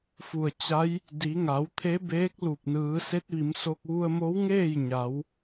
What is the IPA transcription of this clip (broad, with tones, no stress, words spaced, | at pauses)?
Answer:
fu˧˩ə̯t͡ɕa˧˥j | di˩˧ ŋa˩˧wt̪ʰe˧˥beː˧˥k̚ lu˧˩p̚nɯː˩˧ se˧˥t̚ʋi˩˧mso˧k̚ ʋu˧ə̯mo˧˥wŋeː˥˨j ɲa˩˧w